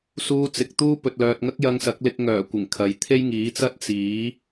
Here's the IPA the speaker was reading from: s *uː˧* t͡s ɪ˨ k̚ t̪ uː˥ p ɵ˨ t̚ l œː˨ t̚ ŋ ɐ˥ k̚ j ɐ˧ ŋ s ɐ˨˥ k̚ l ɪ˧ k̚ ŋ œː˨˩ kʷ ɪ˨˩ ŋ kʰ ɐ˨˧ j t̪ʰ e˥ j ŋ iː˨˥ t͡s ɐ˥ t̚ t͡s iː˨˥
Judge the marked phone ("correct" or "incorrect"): correct